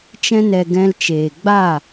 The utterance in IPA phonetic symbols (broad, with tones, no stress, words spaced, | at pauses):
t͡ʃɛ̃˧nɛ˨ ɡɛ̃˧lt͡ʃeː˨ ɡ͡ba˦˨